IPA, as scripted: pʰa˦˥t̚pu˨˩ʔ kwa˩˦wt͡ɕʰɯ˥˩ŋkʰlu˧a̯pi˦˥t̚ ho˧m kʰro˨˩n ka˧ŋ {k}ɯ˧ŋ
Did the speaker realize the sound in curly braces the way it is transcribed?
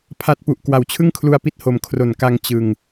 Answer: no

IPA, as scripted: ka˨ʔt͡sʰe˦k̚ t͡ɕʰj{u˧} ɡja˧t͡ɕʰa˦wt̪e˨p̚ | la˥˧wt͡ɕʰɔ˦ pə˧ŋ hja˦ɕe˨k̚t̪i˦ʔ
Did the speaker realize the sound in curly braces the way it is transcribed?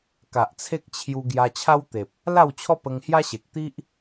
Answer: yes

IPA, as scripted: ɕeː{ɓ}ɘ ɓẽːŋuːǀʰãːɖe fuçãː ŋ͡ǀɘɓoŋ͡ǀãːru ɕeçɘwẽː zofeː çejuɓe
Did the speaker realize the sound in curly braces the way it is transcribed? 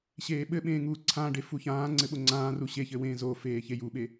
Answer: yes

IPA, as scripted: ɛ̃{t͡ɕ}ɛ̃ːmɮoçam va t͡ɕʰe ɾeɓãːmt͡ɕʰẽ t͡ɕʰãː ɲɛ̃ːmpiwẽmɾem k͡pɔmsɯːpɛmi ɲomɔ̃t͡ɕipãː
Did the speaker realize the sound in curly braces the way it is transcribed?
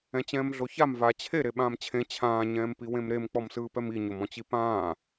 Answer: yes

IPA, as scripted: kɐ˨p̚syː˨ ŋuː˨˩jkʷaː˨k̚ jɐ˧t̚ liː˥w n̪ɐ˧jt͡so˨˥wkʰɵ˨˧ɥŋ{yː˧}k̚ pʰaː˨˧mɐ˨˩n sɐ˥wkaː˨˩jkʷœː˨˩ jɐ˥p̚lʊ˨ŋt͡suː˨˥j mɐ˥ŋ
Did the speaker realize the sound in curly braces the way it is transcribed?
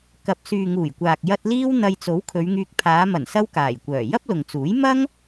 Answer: yes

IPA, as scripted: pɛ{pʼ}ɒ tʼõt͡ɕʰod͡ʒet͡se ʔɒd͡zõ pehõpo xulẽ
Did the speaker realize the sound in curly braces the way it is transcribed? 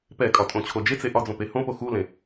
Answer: no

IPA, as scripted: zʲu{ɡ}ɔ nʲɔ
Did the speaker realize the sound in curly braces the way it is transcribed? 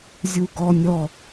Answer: yes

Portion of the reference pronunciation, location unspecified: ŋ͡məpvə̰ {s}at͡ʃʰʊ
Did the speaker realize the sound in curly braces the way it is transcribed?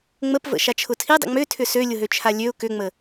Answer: no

